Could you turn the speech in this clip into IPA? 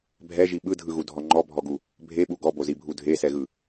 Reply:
bʱ ɛ ʒ i ɓ ɯ dʱ ɯ ɣ u dʱ ɔ ŋ͡ǃ ɔ bʱ ɔ ɡ u | bʱ e ɓ u ɡ ɔ b o z i bʱ u dʱ e s ɛ ɣ ɯ

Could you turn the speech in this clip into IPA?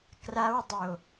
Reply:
k r a w dˤ o

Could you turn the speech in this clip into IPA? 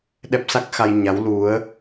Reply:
ɗ ɛ˦˥ p̚ s a˦˥ k̚ x a˧ j ɲ a˨˦ w l u˨˦ ə̯

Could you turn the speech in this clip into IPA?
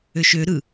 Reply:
ø ʃ ø ɾ ɯ

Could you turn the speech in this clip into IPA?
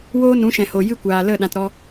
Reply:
w oː˦ n ũ˨˦ ʃ ɛ̃˨ h o˨ j ɨ˦ kʷ aː˨ l ə˦˨ ɗ ã˧ t ɾ ɔ˦

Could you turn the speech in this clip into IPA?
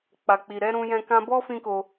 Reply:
k͡p a˨ k͡p i˨ ɾ ɛ˨˦ ɾ ũ˧ j ɛ̃˧ k ã˧ b ɔ˦ f ĩ˦ k o˧

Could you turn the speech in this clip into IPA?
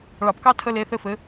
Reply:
ɭ ɑ˧˩˧ p k ɑ˥ tʰ ə˧˥˧ l e˧˥˧ θ ɘ˥˨ f ɘ˩˥

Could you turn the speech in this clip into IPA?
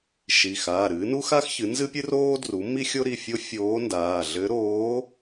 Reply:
ʃ i˩˧˩ x aː˩˧˩ ɾ ɨ˩˥ n u˥ x a˥ x ç ɨ˩˥ n z ɨ˥ pʲ ɨ˥ r oː˥ d r u˩˥ m i˥ xʲ o˥ ɾ i˩˧˩ fʲ o˥ fʲ oː˧˥ n d aː˩˧˩ ɮ ɘ˧˥ ɾ oː˧˥

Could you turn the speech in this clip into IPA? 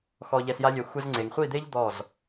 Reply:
x ɔ˧ ʎ ɛ˧ s j a˦ lʲ ɛ˧ xʷ ɛ˧ z ŋ͡ǀ e˨ ŋ χʷ i˦˨ d̪ e˦ ʎ d̪ ɔ˦˨ z

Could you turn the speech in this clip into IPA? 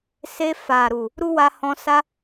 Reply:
s e˧ f a˨ ɾ u˨ | ɾ u˦ w a˧ h ɔ̃˧ s a˦

